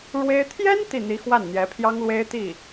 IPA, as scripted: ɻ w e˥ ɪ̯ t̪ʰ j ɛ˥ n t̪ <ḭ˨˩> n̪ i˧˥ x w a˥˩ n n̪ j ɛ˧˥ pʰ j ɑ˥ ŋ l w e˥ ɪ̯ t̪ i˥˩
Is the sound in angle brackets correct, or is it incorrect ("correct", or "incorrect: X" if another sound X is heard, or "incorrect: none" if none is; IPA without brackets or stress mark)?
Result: incorrect: i˥˩